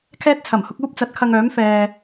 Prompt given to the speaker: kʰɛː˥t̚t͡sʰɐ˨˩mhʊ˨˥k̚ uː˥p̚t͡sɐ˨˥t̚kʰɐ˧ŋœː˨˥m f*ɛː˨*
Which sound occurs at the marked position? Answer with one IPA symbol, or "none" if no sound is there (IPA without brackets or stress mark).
ɛː˧